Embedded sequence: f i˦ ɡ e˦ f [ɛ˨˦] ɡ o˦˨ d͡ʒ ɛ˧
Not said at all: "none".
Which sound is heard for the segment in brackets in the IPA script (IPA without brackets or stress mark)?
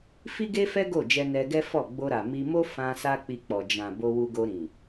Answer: ɛ˦